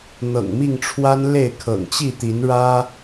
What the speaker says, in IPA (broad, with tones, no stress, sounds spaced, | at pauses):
n̪ ɤ̰˨˩ ŋ m i˥˨ ŋ ʈ͡ʂʰ w a˦ n l e˥˨ ɪ̯ kʰ ɤ̰˨˩ ŋ t͡ɕ i˥˨ t̪ i˨˦ n ɻ ä˦